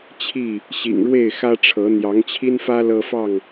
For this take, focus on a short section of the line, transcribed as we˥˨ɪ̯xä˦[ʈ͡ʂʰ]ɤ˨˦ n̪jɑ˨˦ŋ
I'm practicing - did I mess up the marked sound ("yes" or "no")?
no